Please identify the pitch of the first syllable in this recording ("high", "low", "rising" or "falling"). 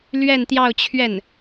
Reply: falling